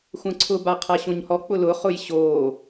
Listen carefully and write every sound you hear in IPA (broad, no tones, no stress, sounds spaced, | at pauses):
xʷ ɐ̃ ǀʰ ʊ b a qʰ a ɕ õ ɲ h ɔ k͡p ʊ l ʊ χ ʊ j ɕ o